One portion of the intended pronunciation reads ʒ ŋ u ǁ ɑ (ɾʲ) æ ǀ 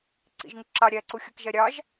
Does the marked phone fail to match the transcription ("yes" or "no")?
no